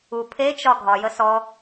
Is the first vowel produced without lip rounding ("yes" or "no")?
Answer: no